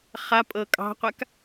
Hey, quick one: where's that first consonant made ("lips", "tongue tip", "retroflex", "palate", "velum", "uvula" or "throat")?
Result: uvula